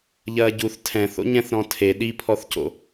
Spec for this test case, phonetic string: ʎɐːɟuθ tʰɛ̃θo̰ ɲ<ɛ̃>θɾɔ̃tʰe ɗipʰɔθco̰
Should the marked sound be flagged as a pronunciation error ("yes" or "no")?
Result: no